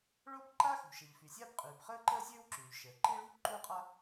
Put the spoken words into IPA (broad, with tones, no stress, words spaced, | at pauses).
ɭo˥b ǃa˥xṳ˩ʃɛ˩ʎ fy˩sʲaː˥bqʼyː˩b χəː˥ǃəː˥sʲøː˥w ǁyː˩ʎʃəː˩ ǃi˥ ɭṳ˥ ǃu˥qʼa˥